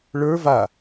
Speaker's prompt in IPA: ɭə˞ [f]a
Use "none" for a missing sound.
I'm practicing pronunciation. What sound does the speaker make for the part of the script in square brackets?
v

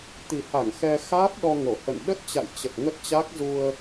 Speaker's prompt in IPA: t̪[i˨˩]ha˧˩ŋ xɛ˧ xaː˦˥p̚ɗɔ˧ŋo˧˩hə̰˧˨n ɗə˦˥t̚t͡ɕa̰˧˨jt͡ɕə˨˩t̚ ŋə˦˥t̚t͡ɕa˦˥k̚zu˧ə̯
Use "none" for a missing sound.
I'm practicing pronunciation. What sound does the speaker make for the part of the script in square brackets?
i˨˩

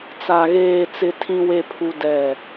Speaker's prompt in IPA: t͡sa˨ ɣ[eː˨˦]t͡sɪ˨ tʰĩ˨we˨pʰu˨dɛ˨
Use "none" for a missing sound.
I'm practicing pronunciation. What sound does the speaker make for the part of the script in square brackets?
eː˨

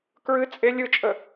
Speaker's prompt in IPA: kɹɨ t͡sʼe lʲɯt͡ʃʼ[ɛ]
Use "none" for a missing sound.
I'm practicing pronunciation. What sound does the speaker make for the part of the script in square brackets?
ə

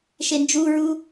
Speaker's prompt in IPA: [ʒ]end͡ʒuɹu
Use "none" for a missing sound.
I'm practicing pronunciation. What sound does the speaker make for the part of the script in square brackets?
ʃ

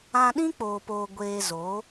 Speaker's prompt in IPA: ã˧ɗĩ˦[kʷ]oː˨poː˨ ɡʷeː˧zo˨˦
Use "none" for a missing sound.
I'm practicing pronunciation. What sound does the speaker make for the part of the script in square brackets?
k͡p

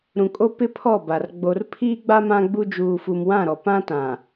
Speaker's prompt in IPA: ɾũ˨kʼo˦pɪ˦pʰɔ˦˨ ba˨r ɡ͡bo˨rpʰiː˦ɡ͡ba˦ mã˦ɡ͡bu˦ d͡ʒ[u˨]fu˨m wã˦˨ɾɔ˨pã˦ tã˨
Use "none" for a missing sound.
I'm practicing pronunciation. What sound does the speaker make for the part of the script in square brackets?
uː˨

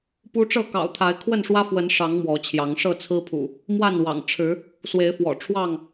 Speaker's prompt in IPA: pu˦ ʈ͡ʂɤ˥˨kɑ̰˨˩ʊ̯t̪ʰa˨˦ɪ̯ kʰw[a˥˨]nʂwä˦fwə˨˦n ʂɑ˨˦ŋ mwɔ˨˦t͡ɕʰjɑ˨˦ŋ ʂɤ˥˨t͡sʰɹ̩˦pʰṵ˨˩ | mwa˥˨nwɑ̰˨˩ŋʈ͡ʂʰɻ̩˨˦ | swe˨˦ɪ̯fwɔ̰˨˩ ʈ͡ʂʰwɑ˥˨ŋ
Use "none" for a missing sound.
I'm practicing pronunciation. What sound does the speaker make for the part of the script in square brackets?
ə˥˨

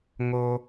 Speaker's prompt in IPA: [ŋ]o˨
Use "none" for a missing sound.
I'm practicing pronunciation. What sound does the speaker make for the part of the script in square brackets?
ŋ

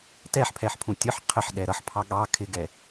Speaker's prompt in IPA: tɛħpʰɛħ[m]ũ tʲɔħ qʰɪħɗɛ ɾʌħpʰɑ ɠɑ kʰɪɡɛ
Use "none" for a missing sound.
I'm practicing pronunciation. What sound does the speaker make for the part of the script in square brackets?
pʰ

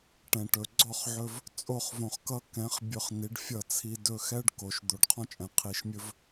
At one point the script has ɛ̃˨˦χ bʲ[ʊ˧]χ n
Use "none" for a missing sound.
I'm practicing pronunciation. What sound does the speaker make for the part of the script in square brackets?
ɵ˧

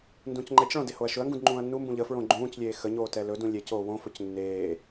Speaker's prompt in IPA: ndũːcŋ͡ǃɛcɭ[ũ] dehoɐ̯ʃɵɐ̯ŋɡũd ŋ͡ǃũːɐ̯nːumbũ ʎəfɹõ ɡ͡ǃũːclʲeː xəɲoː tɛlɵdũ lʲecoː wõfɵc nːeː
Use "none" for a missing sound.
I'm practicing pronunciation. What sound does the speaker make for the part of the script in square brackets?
õ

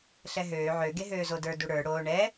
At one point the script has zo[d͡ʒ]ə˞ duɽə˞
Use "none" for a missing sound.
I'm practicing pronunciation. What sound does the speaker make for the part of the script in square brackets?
d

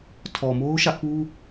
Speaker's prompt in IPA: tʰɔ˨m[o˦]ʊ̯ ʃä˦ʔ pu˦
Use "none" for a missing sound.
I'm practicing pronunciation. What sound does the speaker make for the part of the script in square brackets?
o˦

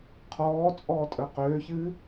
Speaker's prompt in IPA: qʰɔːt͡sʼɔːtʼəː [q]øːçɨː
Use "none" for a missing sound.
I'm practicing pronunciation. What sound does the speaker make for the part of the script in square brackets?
q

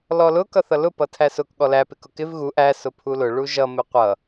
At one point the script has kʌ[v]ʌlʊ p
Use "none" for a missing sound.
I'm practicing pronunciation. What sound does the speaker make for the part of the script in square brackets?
θ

